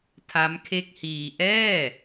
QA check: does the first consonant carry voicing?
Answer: no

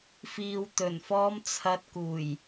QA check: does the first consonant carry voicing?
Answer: no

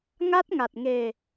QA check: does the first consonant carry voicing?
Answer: yes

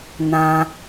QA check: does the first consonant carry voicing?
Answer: yes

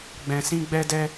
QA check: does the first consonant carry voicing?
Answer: yes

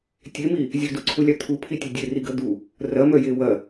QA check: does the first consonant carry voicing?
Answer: no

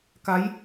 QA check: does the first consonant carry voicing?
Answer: no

